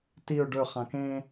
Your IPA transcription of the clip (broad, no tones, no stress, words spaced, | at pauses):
tiʊ̯ ɖɵ χãkẽ